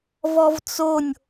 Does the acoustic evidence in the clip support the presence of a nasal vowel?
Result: no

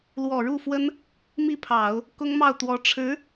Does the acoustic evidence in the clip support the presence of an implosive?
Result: no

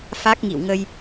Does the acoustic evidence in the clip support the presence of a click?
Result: no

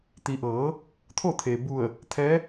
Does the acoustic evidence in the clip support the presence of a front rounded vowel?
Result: no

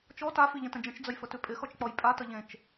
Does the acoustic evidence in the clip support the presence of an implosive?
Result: no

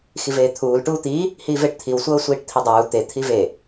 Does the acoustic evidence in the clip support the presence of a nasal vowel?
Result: no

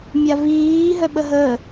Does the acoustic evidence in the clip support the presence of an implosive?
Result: yes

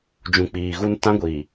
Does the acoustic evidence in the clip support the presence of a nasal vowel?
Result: yes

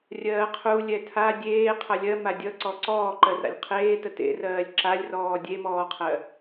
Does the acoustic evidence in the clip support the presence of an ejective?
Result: no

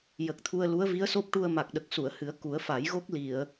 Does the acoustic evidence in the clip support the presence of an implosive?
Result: yes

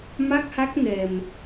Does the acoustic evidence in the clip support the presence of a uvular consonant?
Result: no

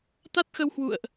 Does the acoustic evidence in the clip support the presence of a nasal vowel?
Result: no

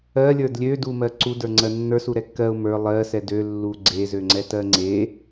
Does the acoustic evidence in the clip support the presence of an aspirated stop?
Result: no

